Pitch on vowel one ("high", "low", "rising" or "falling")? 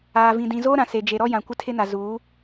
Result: low